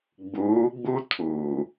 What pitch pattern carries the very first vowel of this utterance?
rising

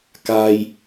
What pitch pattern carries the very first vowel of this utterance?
low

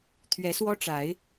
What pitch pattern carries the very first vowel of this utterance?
rising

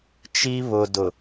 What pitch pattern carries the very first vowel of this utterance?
high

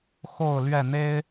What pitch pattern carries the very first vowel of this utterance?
falling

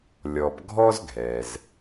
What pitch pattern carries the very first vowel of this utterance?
low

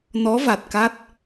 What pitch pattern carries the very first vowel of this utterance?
rising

